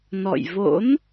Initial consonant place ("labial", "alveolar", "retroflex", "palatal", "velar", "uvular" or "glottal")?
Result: alveolar